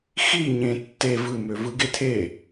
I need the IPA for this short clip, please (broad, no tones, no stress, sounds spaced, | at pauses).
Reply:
x i ɲ ẽ tː e v ɯ m ø v ɯ ɡ e tʰ e